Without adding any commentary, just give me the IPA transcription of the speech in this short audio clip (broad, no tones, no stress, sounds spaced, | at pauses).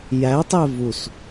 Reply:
j æ tˤ e v u s